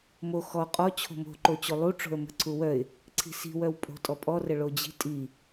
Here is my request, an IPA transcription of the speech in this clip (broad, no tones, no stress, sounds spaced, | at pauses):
m o x ɔ qʼ ɔ t͡ɕʰ o̤ m o̤ ǃ o t͡ɕ o lˠ u ʈ͡ʂ o̤ ə̯ m ə̤ ǀʰ u w œ ɪ̯ | ǀʰ i̤ s i̤ w œ w pʼ o̤ tʼ ɔ pʼ ɔ r ə ɭ o d͡ʑ i̤ tʼ i